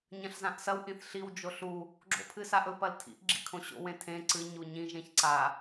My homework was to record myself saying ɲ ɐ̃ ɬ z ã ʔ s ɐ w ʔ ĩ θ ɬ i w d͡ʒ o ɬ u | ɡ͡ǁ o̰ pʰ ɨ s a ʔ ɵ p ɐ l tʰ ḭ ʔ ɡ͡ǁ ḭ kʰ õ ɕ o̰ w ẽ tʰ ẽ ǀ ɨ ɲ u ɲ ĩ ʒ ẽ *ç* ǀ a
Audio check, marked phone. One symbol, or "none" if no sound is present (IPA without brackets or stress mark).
ç